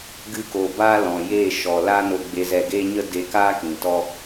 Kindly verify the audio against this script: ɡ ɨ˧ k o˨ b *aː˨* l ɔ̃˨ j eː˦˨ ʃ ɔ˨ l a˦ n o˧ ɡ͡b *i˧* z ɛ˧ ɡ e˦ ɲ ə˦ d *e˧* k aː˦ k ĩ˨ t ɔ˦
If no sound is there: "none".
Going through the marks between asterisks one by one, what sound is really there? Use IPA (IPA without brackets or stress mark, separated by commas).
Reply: aː˦, e˧, e˧